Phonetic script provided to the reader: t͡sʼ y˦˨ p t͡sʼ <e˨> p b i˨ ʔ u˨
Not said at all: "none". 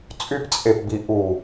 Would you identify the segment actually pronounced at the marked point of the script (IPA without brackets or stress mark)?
e˨